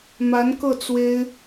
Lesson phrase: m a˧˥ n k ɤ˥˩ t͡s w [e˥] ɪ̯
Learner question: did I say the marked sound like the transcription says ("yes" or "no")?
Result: yes